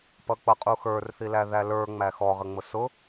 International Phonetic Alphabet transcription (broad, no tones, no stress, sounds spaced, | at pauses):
p ʌ k͡p ʌ qʼ u x ə˞ r θ i l æ ð æ l ə˞ ŋ͡m æ x ɔ ʁ ə ŋ͡m ʊ s ʊ